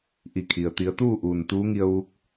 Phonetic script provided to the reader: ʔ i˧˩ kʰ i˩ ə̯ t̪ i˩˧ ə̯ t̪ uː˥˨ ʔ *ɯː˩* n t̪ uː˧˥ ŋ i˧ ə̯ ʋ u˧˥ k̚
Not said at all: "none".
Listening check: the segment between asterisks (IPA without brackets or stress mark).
uː˩